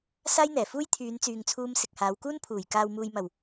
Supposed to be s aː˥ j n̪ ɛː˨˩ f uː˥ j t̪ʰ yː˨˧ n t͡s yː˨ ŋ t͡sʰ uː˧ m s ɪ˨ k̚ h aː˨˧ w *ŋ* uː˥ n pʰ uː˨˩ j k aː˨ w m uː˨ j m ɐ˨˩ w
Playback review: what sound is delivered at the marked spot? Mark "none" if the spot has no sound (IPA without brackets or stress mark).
k